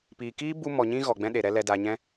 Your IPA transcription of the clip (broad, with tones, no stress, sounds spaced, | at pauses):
p iː˨ k iː˦ b u˧ m ɔ˨ ɲ ĩ˦ ɣ ɔ˨ ɡ͡b ɛ̃˦ ɗ e˨ ɾ ɛ˦ l ɛ˧ d a˨ ɲ ɛ̃˧